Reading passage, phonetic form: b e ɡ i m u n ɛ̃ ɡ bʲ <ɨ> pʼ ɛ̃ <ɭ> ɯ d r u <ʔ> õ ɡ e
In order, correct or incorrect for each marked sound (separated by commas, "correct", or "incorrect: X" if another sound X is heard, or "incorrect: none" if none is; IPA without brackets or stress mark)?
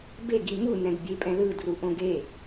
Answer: incorrect: e, incorrect: l, correct